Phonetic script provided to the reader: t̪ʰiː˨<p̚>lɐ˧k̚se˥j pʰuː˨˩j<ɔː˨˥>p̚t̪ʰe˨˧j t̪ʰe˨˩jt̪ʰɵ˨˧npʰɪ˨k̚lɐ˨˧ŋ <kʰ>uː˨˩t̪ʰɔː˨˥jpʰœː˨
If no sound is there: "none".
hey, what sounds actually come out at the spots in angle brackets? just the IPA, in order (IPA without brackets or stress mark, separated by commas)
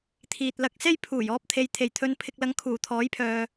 t̚, ɔː˧, kʰ